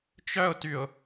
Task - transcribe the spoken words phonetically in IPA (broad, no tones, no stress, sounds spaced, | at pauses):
t͡ʃ œ ʊ̯ t y ʊ̯